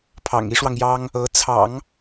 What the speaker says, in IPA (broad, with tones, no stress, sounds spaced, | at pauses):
pʰ ɑ̰˨˩ ŋ i˧˥ ʂ w ɑ˧ ŋ j ɑ˥ ŋ | ɤ˧˥ t͡sʰ ɑ̰˨˩˦ ŋ